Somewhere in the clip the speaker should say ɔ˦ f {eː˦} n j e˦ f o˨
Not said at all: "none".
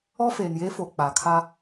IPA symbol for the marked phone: eː˨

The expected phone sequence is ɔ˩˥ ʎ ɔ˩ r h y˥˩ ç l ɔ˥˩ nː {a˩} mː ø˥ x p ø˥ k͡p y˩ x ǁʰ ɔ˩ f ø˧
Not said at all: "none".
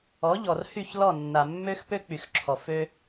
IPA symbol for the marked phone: a˩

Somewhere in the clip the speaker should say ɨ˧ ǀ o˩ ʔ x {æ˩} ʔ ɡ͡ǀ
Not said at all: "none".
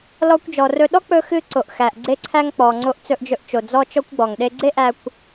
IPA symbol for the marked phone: æ˩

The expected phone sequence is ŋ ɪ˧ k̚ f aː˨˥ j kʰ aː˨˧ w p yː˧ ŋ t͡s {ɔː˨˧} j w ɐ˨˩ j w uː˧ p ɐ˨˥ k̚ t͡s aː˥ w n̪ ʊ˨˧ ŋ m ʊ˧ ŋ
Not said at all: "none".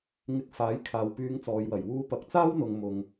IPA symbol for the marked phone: ɔː˨˧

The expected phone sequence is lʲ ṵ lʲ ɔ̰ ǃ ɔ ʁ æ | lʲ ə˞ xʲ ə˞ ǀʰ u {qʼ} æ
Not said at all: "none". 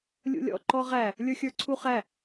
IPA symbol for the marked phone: χ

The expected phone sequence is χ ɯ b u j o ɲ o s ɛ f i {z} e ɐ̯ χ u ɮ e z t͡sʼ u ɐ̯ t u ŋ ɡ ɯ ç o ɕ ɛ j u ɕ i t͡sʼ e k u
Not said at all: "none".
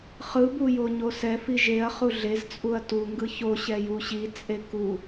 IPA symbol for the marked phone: ʒ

